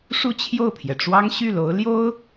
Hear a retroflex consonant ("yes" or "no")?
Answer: yes